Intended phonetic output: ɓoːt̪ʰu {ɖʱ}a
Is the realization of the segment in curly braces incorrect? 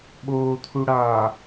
yes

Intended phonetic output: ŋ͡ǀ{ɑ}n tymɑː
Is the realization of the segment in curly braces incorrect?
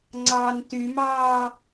no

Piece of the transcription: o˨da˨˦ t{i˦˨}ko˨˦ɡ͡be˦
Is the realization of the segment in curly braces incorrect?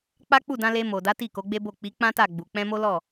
no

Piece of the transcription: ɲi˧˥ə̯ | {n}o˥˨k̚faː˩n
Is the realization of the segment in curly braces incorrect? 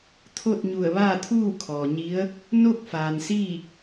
no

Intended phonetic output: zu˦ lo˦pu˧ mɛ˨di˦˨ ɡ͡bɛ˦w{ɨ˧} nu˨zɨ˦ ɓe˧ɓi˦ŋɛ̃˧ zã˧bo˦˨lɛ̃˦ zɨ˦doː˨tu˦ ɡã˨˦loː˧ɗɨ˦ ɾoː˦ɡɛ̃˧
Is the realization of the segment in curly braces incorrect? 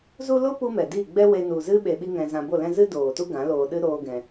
yes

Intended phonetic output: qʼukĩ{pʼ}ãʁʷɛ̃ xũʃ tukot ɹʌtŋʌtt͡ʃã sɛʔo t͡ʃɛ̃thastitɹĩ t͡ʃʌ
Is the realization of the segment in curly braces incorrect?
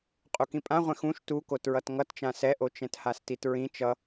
no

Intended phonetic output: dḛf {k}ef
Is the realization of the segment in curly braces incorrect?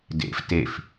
yes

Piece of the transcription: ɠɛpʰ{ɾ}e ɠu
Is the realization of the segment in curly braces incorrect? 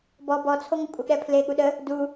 yes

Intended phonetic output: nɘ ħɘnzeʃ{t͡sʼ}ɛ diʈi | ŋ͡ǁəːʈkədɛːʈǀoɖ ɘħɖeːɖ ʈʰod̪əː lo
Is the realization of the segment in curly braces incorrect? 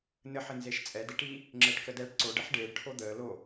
no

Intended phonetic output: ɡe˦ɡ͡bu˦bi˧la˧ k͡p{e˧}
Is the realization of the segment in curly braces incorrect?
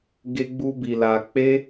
yes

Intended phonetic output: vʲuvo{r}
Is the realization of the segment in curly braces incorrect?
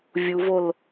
yes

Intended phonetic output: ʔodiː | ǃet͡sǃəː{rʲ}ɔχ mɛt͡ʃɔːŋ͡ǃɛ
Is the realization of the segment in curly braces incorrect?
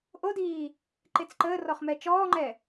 yes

